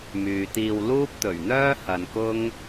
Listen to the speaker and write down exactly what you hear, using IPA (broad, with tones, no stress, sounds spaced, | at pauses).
m yː˨ t̪ iː˧ w l uː˥ p̚ t̪ ɵ˨˩ ɥ n̪ œː˥ h ɐ˨ n k ʊ˥ ŋ